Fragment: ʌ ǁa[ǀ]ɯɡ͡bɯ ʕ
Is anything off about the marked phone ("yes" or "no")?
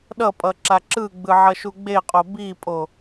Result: yes